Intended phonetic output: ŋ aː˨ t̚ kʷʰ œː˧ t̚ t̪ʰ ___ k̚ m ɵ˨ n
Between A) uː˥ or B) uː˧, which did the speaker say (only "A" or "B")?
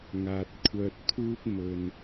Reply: A